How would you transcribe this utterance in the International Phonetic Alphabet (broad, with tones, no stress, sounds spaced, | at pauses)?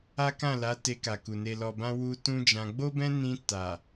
a˦ k ã˦˨ l a˨˦ t e˧ k a˨ k u˨ n e˨ l ɔ˨ b ã˧ w u˧ t ũ˦ d͡ʒ ã˧ ɡ͡b o˦ b ɛ̃˦ n ĩ˧ t a˨